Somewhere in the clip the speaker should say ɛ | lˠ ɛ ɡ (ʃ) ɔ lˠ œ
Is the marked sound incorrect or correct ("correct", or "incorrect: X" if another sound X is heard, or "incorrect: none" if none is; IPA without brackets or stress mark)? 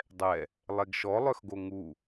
correct